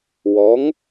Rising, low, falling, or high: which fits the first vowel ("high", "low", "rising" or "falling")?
rising